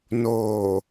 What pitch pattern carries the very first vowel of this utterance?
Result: low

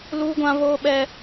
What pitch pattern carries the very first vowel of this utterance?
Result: high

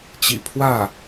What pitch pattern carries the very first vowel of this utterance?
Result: low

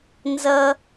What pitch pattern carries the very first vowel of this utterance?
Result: high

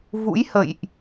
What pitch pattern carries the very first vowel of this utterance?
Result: rising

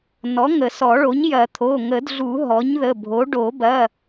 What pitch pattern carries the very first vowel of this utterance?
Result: rising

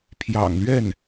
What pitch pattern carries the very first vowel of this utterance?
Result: low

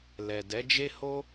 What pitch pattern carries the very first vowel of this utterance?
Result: low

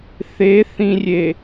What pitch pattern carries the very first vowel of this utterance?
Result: rising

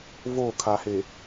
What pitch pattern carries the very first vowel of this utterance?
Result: falling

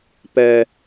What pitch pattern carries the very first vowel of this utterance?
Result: high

